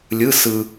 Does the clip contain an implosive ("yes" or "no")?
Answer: no